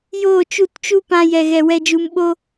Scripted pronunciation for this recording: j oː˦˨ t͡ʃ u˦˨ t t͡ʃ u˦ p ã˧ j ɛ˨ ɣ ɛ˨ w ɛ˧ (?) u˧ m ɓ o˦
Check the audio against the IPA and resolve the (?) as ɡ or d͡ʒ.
d͡ʒ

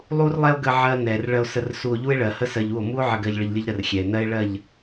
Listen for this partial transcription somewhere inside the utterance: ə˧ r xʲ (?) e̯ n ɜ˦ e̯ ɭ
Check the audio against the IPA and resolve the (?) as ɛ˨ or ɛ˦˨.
ɛ˨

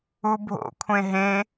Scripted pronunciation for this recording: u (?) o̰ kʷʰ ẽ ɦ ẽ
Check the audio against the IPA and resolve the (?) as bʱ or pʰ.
bʱ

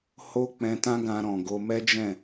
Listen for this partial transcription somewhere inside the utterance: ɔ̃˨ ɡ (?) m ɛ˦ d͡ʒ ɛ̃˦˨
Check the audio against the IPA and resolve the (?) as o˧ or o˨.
o˧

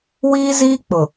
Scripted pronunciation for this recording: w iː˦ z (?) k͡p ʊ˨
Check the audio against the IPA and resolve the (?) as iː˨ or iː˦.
iː˦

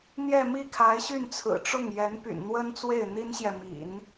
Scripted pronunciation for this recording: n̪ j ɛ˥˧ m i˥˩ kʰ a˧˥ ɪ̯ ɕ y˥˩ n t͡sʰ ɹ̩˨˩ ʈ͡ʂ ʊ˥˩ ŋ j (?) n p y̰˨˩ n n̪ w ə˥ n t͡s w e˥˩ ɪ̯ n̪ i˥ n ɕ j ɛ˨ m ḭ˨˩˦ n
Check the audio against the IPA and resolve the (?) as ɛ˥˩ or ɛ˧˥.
ɛ˧˥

